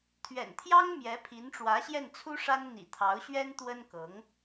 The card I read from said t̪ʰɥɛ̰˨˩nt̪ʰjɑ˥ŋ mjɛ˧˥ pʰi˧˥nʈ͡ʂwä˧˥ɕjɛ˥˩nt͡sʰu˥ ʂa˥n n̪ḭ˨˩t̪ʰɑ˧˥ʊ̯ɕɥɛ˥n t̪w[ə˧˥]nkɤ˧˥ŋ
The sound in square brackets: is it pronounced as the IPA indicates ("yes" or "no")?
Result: no